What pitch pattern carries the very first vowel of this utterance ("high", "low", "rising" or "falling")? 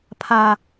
low